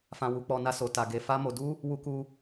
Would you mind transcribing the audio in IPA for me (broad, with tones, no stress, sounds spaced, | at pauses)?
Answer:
f ã˧ w u˧ k͡p ɔ˧ n a˦ s o˧ t a˧ ɡ e˧ f a˦ m o˧ d u˦ | w u˦ k u˦